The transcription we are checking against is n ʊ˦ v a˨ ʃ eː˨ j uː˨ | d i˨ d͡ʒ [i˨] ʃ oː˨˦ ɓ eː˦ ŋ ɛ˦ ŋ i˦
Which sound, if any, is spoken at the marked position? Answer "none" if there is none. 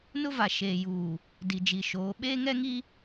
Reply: i˨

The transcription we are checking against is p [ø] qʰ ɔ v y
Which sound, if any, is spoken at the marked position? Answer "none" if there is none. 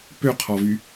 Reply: ø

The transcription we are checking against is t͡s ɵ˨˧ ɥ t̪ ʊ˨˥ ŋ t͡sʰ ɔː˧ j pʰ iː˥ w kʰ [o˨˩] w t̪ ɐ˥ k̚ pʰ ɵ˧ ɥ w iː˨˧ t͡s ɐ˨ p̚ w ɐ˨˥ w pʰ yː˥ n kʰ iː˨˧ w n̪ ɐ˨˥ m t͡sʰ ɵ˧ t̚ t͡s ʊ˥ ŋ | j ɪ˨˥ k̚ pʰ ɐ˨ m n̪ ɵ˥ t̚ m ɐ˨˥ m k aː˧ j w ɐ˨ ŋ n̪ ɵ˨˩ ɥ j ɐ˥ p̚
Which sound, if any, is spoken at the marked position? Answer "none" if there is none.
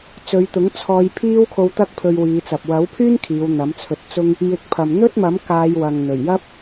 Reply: o˧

